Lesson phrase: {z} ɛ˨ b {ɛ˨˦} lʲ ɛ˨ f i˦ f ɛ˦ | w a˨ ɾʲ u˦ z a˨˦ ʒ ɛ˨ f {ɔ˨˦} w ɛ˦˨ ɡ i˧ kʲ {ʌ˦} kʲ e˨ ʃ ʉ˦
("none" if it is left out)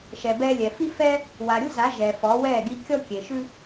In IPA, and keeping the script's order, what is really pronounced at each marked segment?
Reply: ʃ, ɛ˧, ɔ˨˦, ɔ˦

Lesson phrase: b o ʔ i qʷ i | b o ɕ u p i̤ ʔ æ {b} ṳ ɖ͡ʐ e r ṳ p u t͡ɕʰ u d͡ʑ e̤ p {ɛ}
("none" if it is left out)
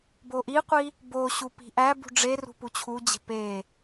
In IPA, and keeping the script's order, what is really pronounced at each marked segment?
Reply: b, e

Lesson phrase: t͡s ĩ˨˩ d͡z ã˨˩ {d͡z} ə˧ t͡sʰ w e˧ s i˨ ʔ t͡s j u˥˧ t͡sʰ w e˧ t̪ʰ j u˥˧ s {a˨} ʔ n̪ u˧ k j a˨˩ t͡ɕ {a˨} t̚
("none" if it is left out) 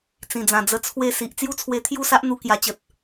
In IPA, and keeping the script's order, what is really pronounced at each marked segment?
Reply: d͡z, a˦, ə˨

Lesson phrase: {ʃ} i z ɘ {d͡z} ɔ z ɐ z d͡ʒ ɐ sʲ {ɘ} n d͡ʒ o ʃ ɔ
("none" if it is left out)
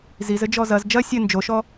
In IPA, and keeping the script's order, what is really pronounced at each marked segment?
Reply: z, d͡ʒ, ɘ

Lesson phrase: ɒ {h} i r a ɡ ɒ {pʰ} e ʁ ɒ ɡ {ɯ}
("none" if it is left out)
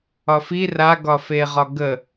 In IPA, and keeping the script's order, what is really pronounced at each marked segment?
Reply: f, f, ə

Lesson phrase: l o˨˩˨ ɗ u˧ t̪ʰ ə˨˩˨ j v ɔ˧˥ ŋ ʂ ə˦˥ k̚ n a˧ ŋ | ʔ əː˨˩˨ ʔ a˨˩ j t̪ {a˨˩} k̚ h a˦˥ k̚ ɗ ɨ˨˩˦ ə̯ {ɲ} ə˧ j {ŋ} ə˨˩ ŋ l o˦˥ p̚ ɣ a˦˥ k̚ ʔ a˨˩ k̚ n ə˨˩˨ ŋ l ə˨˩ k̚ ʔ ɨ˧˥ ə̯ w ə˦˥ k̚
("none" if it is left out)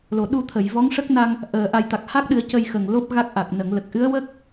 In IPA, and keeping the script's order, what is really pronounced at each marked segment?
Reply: a˨˩, c, x

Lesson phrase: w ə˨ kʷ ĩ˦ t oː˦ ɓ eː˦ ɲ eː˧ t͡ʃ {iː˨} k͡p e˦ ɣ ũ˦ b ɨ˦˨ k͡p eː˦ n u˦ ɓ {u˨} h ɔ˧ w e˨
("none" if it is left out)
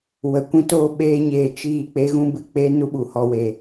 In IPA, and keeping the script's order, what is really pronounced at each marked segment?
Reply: iː˦˨, u˨

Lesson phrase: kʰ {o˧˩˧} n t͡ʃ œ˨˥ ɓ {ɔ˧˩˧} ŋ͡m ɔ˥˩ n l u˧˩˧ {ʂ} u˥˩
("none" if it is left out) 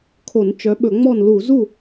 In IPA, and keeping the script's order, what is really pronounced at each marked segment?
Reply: o˧˩˧, ɵ˧˩˧, z

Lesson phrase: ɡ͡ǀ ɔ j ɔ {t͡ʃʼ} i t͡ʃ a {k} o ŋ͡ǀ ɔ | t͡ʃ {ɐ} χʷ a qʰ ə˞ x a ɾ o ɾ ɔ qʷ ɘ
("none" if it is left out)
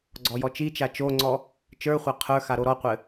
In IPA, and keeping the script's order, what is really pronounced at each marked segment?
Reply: t͡ʃ, t͡ʃ, ə˞

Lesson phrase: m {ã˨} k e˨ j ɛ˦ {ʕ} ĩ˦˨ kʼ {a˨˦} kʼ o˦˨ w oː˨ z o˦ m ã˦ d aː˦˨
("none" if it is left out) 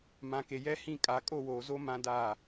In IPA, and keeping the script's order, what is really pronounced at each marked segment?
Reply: ã˨, h, a˨˦

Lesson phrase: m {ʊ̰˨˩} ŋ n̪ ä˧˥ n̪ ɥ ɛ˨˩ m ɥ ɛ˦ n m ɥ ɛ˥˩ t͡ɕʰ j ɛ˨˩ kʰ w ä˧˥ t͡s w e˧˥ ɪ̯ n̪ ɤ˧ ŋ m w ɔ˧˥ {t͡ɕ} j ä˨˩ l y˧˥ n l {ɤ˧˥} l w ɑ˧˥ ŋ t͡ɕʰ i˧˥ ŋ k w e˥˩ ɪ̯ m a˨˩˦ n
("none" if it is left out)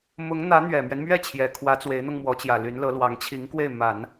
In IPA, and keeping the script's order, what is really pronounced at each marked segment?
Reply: ʊ˧˥, t͡ɕ, ɤ˧˥

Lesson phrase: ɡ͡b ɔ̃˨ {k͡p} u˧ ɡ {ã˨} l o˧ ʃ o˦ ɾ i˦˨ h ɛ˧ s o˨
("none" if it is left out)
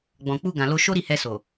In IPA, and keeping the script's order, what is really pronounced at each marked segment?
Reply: k͡p, ã˨

